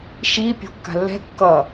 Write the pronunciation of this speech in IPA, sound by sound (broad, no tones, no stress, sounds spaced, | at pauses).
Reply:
ʃ i pʲ o̤ kː a̤ lː ɛ̤ kː ʌ